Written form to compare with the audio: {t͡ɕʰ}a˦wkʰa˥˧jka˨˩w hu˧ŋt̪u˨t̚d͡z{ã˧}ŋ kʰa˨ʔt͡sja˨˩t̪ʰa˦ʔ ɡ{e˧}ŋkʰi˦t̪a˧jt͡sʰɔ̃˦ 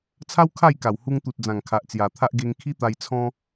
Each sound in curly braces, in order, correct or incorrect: incorrect, incorrect, correct

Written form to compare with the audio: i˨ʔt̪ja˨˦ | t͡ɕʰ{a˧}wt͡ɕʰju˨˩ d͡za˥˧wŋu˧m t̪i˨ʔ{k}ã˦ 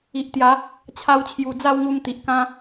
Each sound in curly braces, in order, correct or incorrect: correct, correct

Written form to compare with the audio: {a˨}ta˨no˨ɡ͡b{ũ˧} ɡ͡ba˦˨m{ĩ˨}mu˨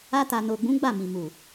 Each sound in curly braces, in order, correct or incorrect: incorrect, incorrect, correct

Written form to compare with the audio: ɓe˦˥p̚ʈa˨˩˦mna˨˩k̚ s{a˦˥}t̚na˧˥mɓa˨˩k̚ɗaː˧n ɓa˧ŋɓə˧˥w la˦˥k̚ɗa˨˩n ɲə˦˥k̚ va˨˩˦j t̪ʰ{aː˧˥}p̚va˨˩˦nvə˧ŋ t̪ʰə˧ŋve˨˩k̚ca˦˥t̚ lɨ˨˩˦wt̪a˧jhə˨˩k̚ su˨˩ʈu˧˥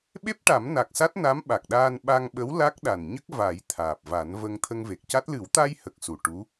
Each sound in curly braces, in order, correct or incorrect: correct, incorrect

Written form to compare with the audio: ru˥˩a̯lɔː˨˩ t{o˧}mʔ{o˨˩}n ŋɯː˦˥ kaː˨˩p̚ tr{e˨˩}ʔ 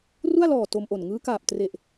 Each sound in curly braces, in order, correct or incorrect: correct, correct, correct

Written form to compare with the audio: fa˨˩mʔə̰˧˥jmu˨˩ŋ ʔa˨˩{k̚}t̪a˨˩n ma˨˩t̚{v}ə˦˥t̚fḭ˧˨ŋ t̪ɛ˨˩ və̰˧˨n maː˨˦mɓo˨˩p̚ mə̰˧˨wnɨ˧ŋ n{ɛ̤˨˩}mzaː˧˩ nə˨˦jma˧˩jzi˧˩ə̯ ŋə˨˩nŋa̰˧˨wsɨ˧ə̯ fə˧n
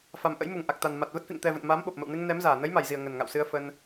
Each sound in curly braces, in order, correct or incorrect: correct, correct, incorrect

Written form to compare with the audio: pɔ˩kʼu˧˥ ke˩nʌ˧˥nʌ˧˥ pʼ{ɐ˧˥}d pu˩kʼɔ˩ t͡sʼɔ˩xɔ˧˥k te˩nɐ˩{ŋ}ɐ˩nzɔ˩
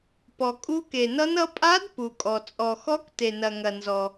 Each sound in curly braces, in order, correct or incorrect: incorrect, correct

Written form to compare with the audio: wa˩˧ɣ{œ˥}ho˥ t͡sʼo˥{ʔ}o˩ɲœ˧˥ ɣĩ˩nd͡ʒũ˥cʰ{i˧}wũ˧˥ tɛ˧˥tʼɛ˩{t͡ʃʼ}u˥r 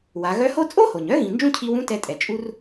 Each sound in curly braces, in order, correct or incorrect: incorrect, incorrect, correct, correct

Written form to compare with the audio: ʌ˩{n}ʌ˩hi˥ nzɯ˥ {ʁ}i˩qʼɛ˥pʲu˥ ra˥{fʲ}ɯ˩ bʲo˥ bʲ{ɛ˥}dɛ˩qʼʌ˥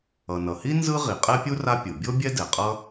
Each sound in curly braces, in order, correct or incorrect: correct, correct, incorrect, correct

